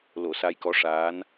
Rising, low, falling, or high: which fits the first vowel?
low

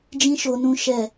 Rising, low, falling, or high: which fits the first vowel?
high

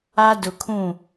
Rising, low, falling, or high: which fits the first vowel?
high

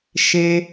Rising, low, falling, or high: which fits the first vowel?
high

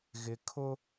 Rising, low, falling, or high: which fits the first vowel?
low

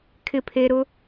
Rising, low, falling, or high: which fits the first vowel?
low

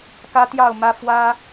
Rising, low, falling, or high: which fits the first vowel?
high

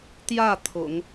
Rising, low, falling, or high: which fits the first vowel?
falling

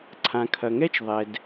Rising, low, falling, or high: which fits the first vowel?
low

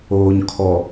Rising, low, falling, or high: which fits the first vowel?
low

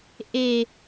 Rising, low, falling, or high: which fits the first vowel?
low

